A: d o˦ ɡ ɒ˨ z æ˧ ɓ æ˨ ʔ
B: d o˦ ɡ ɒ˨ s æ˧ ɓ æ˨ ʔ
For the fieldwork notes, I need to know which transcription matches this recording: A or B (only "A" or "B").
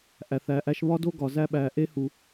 A